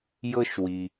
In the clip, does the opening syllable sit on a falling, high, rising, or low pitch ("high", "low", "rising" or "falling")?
high